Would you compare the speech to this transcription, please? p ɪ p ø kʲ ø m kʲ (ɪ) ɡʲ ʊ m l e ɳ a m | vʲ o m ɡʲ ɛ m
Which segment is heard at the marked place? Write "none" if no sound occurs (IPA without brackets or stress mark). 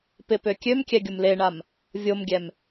ɛ